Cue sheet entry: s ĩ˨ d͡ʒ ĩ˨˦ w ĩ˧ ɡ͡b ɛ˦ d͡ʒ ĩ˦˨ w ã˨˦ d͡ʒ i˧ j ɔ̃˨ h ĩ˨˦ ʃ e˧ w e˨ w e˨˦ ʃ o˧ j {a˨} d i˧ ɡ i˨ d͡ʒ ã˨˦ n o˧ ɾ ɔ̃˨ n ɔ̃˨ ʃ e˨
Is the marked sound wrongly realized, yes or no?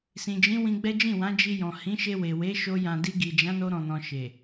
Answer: yes